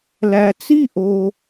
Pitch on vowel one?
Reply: low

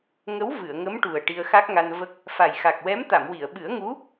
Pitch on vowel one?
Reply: rising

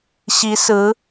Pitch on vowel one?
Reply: rising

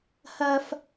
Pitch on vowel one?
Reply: high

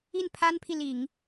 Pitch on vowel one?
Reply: falling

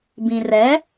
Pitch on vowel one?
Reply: low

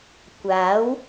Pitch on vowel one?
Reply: rising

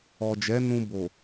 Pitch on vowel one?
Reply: low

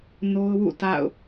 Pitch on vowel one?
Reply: high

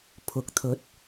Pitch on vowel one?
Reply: rising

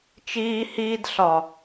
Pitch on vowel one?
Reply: high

